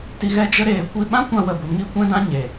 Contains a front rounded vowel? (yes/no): no